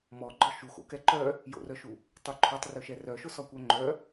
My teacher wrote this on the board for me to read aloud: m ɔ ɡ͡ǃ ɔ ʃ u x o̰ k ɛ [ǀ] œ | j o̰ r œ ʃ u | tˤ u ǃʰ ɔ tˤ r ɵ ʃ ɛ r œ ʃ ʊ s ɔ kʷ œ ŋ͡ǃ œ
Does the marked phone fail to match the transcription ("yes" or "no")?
yes